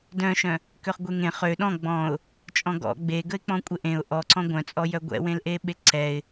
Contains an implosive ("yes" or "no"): yes